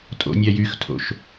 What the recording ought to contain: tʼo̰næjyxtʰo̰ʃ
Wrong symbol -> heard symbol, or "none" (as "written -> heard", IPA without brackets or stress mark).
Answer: n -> nʲ